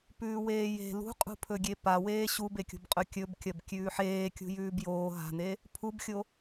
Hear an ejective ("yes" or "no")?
yes